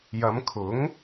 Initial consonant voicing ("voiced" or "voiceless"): voiced